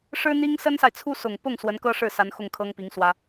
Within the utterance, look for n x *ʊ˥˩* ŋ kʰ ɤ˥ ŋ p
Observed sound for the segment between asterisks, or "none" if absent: ʊ˥˩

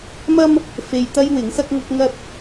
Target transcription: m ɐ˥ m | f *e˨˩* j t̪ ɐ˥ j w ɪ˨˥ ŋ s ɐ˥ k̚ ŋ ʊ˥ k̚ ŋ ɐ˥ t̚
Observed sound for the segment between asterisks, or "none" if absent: e˧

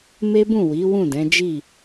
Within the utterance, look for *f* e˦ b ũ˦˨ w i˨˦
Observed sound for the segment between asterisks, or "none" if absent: m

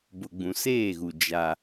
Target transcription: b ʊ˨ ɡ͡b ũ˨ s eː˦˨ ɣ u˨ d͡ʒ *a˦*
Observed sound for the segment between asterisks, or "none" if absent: a˦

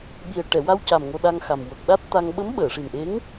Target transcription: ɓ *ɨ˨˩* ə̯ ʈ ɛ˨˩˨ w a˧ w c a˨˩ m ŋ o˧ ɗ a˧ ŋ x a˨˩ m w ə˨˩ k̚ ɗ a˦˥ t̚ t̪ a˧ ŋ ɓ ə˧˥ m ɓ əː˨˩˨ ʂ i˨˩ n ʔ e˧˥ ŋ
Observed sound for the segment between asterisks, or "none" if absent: i˨˩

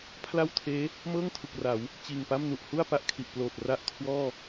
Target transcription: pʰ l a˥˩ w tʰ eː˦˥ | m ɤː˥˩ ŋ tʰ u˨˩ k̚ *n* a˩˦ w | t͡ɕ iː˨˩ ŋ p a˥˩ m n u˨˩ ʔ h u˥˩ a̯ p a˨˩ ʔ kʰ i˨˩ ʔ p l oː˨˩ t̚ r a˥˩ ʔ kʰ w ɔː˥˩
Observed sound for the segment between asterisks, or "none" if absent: r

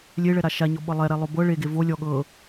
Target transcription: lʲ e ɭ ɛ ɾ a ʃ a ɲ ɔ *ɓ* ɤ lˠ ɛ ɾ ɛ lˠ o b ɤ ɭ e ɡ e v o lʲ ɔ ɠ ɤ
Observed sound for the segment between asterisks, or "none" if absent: ɓ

